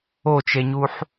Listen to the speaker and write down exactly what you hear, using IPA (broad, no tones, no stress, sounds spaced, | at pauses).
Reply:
o t͡ʃ e ɲ u ħ